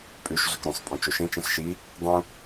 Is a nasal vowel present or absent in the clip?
present